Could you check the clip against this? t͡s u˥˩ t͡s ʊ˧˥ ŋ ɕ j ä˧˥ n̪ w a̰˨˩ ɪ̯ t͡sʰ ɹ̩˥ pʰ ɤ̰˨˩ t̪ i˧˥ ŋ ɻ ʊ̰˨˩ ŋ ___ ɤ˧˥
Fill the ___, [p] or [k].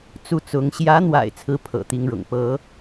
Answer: p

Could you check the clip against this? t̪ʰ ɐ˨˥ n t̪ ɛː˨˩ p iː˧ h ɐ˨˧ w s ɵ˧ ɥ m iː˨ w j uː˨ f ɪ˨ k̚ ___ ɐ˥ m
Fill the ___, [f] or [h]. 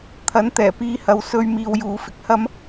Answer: h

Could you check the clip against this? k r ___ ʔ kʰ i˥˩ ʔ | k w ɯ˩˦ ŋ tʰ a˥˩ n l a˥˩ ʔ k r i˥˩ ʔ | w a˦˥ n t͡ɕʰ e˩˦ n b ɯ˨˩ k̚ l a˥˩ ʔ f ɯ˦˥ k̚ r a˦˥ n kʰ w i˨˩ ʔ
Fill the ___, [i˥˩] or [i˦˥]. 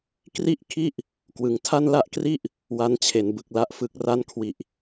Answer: i˥˩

